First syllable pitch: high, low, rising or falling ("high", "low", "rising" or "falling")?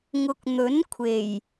rising